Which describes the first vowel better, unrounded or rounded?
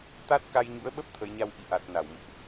unrounded